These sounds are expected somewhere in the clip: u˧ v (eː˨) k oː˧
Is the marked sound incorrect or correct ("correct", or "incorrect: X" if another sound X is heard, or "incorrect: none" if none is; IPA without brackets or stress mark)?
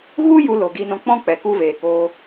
correct